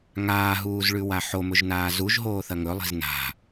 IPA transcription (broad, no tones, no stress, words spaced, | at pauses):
ŋaːɦuːzɭʉwa ħomɵʒnaː zuʒɦoːθɐŋ ɵlˠi̤z na̤